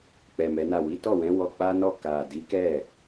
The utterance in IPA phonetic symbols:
k͡p ɛ˨ m ɛ˨˦ n a˦˨ w i˨˦ t ɔ˦˨ w ɛ̃˨˦ w ɔ˧ k͡p a˦ n ɔ˦˨ k a˨ d i˨˦ k ɛ˦˨

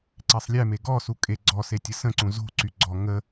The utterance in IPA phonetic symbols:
ǀ e sˤ lʲ ɛ m e ɡ ɔ s u kʼ e ɡ͡ǀ ɔ s e tʲ ə s ə̃ ǀ ũ z o̤ ǀ y ɡ͡ǀ ɔ ŋ ə

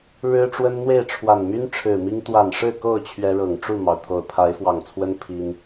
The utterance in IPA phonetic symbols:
ɻ ɻ̩˦ ʈ͡ʂ w ə˦ n n̪ w e˥˨ ɪ̯ ʈ͡ʂʰ w a˨˩ n m y˦ n ʈ͡ʂʰ ɻ̩˨˩ m i˦ ŋ t̪ w a˨˩ n ʂ ɻ̩˥˨ k o˥˨ ʊ̯ t͡ɕʰ ɥ ɛ˦ ɻ ɤ˨˩ ŋ ʈ͡ʂ u˥˨ m ɑ˩ ʊ̯ t̪ʰ o˨˩ ʊ̯ pʰ a˨˦ ɪ̯ f w ɑ˨˩ ŋ t͡sʰ w ə˦ n pʰ i˦ n

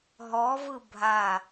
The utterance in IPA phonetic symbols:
ɦ ɔ v ɯ bʱ a

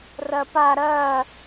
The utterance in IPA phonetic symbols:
r ɐ p a ɾ ɐː

